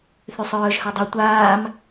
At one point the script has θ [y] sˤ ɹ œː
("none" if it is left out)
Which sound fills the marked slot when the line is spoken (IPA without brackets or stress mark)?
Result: y